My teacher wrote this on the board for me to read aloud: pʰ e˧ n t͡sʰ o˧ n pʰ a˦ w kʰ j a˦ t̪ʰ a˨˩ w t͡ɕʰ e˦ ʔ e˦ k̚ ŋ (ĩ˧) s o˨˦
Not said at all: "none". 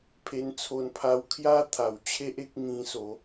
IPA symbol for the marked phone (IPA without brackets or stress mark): ĩ˧